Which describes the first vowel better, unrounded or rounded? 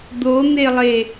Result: rounded